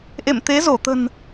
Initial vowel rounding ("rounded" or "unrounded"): unrounded